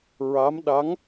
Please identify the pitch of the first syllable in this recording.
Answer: rising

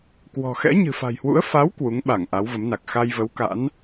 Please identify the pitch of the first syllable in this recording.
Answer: low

